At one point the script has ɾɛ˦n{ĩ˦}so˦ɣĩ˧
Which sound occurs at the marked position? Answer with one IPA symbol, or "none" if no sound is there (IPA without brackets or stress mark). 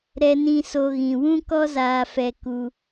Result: ĩ˦